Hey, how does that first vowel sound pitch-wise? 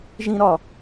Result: high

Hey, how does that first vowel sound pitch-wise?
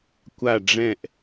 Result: falling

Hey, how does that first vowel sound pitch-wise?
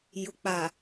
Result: low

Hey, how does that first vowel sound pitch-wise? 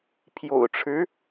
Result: low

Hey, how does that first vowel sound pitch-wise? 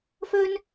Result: high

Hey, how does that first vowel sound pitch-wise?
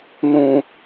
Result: low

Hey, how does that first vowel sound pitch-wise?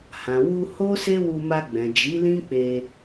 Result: low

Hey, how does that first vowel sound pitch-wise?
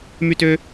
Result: falling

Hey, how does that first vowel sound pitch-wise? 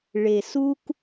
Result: low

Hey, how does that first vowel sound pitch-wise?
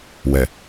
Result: low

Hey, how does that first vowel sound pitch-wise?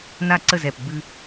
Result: falling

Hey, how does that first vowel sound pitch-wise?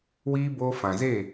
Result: high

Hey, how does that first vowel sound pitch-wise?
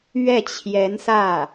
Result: falling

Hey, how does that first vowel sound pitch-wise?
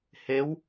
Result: rising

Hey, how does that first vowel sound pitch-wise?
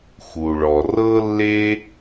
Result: low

